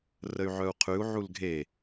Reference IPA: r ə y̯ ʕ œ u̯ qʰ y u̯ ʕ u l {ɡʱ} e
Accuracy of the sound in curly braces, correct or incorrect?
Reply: correct